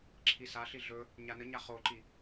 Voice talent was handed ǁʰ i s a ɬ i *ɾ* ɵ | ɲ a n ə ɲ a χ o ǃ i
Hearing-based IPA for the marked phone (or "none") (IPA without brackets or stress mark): ɮ